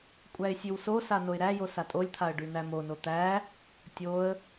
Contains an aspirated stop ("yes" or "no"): yes